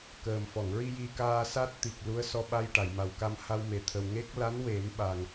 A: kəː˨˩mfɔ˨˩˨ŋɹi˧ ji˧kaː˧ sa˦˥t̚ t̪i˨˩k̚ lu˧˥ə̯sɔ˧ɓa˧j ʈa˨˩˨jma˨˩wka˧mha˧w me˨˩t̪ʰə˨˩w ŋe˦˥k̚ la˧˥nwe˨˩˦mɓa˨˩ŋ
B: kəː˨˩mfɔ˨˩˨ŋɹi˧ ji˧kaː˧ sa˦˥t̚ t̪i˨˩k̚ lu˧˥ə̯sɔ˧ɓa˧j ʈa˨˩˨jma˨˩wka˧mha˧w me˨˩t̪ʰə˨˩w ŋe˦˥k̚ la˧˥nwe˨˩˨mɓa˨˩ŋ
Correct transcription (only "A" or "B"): A